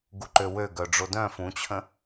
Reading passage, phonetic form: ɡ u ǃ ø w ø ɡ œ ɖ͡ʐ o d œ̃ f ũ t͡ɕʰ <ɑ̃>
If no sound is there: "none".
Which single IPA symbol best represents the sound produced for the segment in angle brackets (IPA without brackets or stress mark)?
ə̃